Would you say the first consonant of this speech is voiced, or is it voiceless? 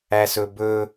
voiceless